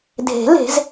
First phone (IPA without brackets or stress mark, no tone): dʱ